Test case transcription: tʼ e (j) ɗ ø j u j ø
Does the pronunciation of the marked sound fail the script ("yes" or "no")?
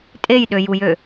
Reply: no